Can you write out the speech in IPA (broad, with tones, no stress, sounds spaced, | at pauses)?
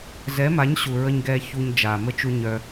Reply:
z ɛ˨˦ m a˨˦ ɲ ɕ u˨ ɹ ə˧ ɲ ɡ ɛː˧ ç u˧ ɲ d͡ʒ aː˨ m ə˦ t͡ʃ u˦ ɲ œ˧